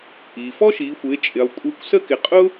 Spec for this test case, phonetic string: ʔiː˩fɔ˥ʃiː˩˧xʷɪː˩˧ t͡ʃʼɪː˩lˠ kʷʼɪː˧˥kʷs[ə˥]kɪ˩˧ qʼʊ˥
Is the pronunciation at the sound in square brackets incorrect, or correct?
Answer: correct